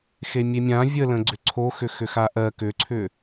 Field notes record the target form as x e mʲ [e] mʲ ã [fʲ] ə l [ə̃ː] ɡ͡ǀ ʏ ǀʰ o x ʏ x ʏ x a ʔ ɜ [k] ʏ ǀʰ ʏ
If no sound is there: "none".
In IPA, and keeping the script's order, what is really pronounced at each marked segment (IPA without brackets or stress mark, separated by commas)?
e, vʲ, ə̃, k